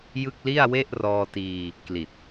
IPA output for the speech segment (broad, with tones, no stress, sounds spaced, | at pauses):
j ɯ˥˩ k̚ l i˥˩ a̯ w e˥˩ ʔ r ɔː˧ t iː˧ | k l i˨˩ t̚